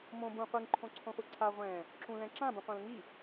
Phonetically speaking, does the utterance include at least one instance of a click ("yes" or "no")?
yes